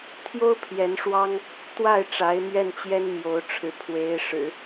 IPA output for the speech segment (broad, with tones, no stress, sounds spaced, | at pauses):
t̪ʰ j o˥ ʊ̯ pʰ j ɛ˧˥ n ʂ w ɑ˥ ŋ | t̪ w a˥˩ ɪ̯ ʈ͡ʂ a˧˥ ɪ̯ m ɥ ɛ˥˩ n t͡ɕ j ɛ˥ n m j o˧˥ ʊ̯ ʈ͡ʂʰ ɻ̩˧˥ pʰ w e˧˥ ɪ̯ ʂ ɻ̩˨˩˦